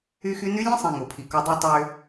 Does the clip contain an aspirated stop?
yes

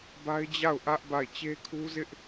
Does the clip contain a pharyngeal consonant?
no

